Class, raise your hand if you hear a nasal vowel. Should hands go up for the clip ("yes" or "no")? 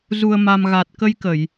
no